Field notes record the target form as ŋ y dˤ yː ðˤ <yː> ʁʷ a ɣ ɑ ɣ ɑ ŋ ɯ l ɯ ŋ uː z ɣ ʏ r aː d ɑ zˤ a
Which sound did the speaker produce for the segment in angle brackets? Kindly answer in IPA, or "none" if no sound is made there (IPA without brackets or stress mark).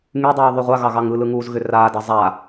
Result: y